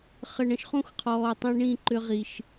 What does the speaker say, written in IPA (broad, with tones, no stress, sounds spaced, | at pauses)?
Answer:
χ ə˧ ɳ ə̃˧ ʃ χ ũ˦ x qʰ ɔː˨ tˤ ĩ˧ ɳ ĩ˦˨ ǃ ʏ˧ ʁ i˨ ʃ